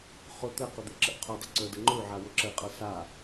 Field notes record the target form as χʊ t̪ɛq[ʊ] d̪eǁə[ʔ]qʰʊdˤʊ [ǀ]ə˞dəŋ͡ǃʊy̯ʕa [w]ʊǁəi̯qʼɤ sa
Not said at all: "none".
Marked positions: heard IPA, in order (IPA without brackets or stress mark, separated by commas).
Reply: ʊ, ʔ, ǀ, w